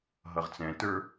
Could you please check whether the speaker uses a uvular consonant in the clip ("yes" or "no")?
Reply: yes